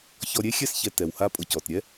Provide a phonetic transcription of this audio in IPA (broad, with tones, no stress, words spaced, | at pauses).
çɔ˨ɾʲe˦ xʲɛ˦sçɛ˨ tɛ˩wha˦ pʼʊ˨cɔ˩tɾʲɛ˥